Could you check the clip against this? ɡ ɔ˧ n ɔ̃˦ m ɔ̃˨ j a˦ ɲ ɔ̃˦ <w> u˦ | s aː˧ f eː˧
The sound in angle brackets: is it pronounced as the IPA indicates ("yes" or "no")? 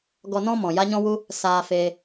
yes